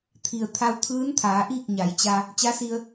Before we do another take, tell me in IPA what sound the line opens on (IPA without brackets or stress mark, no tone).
t̪ʰ